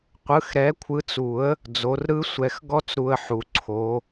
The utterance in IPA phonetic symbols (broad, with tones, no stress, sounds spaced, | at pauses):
qʷ ɯ˨˦ x ɾ ɛ˨˦ kʷʰ ɯ˨˦ t͡s u˨˩˦ ə̯ | d͡z o˨˦ r ɾ ɯ˦˥ sʷ ɛ˨˩˦ x ɡ ɔ˦˥ t͡s ɾ u˨ ə̯ ħ u˨ ǀʰ o˨˦